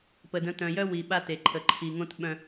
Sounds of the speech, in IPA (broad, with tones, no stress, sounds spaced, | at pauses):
p ə˨ d ə̃˨˦ t̪ œ̃˨ j œ˦ w i˨ ɓ a˦ t̪ e˨ ǃʰ ə˨ ǃʰ i˨ ŋ õ˦ t ɓ œ̃˦